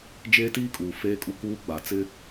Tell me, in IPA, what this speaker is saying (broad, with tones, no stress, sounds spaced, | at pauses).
d͡ʒ eː˦ t iː˦ kʼ uː˨ f eː˦ kʼ u˦ k uː˦ ɡ͡b a˨ t͡s ɪ˦